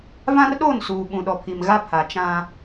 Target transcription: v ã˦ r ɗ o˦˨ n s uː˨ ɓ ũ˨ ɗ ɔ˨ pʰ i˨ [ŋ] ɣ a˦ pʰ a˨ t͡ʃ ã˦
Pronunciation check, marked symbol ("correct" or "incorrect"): incorrect